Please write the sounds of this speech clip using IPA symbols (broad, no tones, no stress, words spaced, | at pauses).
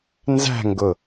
nzæ̤ŋɡʊ